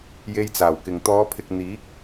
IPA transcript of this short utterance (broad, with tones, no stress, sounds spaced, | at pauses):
j e˧ j t͡s aː˨˩ w k ɪ˨ ŋ t̪ ɔː˨˧ pʰ ɪ˨ k̚ n̪ iː˨˥ k̚